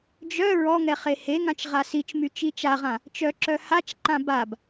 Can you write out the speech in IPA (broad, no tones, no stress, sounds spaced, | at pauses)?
d͡ʒ œ ɹ ɔ ŋ ɛ χ e h e ŋ ã t͡ʃ ʁ a s i t͡ʃ m y t͡ʃ i t͡ʃ a ʁ ã | t͡ʃ œ ǁ œ h a t͡ʃ ǃ ã b a b